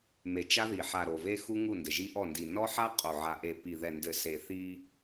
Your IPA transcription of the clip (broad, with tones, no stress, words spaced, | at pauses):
me˨t͡ʃa˦ði˨ ħa˨ɾo˨ve˦xu˦ ŋu˦˨ndɘ˨ʒi˦ʔɔ˦˨ ndi˨ nɔ˦ħa˦ qʼo˨ʕa˨ʔe˨ pi˨ðɛ˨ndɘ˨ se˨θi˦